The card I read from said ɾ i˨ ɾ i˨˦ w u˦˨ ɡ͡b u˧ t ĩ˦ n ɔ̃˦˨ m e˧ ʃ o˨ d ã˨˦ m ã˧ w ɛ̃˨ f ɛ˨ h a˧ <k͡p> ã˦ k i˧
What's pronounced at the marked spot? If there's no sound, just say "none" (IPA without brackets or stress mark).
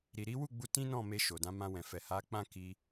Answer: k͡p